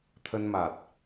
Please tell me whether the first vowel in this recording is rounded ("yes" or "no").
no